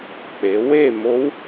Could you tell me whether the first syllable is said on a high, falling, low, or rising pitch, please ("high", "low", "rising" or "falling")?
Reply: rising